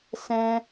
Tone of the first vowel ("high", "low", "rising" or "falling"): high